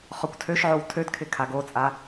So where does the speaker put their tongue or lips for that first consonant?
uvula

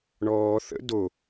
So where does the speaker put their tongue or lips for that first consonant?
retroflex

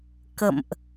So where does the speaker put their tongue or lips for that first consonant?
velum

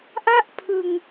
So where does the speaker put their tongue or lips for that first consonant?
throat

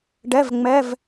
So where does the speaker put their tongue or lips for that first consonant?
retroflex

